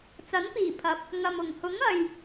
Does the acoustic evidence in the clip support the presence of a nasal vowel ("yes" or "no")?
no